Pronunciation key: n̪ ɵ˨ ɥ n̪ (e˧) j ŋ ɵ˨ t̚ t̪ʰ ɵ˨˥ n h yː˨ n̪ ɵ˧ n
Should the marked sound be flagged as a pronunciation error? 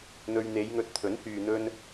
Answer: yes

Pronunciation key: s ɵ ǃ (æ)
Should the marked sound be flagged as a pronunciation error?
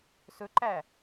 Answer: no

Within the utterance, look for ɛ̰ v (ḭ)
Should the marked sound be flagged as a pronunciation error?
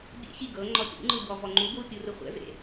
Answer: yes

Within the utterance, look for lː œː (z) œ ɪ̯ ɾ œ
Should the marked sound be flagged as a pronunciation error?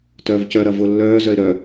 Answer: no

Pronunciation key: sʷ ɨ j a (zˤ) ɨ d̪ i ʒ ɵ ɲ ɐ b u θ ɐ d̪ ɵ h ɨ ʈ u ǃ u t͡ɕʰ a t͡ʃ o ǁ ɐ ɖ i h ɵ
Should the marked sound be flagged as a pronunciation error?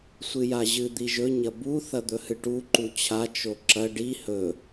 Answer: yes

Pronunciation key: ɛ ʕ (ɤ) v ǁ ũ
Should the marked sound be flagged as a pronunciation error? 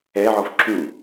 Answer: yes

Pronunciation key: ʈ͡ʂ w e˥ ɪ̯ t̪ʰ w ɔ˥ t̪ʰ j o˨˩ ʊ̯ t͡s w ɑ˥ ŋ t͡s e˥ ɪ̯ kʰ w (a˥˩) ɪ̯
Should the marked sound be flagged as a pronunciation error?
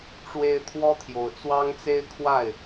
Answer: no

